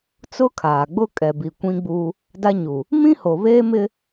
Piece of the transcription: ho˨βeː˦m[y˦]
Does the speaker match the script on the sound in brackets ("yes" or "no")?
no